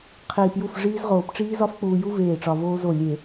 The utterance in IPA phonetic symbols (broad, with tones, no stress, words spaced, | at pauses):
qʰiː˨pju˦˨fʐiː˦zʁoː˨p ʈ͡ʂiː˦zɒ˦fk͡puː˨ju˦ veː˦˨ʈ͡ʂɒ˨voː˦zo˦˨ lʲe˨